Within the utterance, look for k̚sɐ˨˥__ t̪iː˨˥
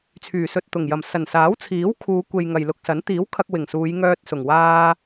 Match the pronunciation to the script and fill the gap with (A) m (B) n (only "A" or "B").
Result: B